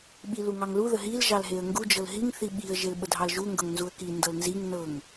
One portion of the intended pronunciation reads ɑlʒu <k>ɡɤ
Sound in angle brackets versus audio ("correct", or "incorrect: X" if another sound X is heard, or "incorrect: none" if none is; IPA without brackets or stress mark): incorrect: ŋ